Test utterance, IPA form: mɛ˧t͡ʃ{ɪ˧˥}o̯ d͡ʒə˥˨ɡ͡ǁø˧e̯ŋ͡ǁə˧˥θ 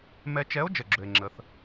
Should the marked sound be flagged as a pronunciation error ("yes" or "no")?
yes